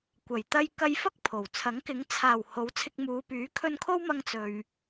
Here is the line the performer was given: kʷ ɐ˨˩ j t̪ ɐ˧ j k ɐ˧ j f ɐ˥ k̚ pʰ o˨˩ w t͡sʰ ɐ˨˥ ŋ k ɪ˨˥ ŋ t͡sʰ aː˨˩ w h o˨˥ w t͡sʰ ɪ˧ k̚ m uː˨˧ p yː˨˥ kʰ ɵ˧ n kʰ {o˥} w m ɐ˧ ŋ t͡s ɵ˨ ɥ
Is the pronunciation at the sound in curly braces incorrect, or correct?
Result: correct